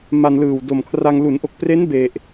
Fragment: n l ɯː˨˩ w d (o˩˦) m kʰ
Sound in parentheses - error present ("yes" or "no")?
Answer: yes